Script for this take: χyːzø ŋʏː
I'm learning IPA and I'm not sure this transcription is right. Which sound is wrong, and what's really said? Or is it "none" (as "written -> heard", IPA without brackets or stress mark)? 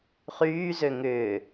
none